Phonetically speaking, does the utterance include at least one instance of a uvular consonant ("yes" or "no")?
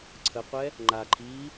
yes